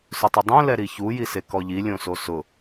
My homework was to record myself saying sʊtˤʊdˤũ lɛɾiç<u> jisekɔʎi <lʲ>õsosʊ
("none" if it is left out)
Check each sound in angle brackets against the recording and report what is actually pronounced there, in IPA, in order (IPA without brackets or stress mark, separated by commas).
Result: u, lʲ